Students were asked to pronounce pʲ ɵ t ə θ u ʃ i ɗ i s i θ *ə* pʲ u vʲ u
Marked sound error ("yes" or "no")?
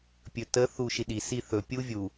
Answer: yes